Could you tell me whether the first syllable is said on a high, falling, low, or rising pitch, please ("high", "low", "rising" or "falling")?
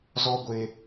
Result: high